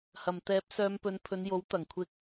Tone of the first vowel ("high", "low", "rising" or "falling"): low